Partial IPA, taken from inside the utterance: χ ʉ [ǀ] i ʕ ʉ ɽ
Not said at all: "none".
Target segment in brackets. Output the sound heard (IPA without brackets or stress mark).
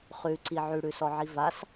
ǀ